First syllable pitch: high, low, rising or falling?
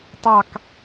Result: falling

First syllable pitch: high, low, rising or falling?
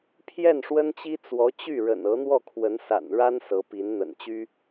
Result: falling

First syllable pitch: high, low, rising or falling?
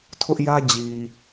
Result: high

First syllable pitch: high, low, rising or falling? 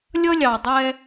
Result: high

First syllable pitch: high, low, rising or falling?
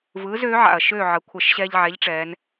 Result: rising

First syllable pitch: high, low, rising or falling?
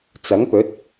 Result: rising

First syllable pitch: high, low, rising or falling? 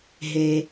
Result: low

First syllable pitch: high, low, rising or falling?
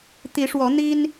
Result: rising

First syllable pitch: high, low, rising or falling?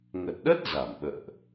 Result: low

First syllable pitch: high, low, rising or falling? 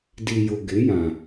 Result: low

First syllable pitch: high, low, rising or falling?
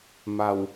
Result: low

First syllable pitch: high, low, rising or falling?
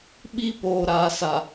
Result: high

